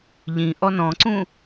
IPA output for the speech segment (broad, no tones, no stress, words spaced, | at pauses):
ʎĩ ʔɔnɔ̃ǀũ